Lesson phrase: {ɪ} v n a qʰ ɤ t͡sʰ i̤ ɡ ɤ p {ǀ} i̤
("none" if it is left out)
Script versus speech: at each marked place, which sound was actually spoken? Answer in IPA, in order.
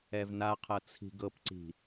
ɛ, ǀ

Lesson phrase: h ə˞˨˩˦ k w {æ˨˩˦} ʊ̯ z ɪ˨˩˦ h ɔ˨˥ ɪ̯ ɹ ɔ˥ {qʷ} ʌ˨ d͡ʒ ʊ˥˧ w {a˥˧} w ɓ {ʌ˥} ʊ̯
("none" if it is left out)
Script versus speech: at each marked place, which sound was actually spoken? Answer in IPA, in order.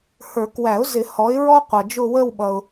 æ˨˩˦, qʷ, ə˥˧, ʌ˨

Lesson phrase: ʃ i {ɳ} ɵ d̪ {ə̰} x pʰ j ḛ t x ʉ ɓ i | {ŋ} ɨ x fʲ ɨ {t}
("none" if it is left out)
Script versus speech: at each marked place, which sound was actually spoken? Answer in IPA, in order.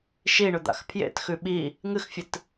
ɳ, a̰, ŋ, t

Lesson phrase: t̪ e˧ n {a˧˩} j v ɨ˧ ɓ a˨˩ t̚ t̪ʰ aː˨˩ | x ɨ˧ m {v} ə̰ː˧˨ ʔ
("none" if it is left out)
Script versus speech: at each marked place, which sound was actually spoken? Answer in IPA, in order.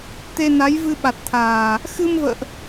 a˨˦, v

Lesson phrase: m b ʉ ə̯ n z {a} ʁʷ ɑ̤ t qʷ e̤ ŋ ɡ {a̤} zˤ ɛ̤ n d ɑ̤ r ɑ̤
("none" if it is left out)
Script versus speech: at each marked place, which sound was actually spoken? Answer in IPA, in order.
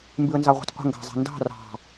ɑ, ɑ̤

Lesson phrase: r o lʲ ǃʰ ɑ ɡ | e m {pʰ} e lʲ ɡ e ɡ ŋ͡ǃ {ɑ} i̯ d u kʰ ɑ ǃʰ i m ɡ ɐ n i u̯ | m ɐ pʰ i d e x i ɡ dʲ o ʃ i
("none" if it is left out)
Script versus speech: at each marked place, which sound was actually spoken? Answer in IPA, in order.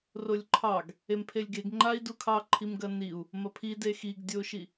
pʰ, a

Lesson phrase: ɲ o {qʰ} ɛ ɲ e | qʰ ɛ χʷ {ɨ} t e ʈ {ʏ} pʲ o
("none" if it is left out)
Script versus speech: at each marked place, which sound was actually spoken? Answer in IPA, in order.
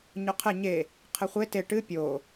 qʰ, e, ɨ

